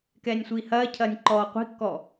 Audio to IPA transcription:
k ɛː nʲ sʷ iː h ɐː cʰ ɐː nʲ ǃ ɔː qʷ i̤ kː ɔ

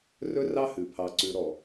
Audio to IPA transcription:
r ɵ˦ r ɑ˦ h ʉ˨ pʰ ɑ˨ ǀ ʉ˨ ɾ ɔ˨

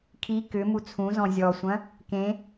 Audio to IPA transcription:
kʰ i k ʏ m u t͡sʰ ũ z ɔ̃ zʲ ɔ sʷ ɐ̃ | k ẽ

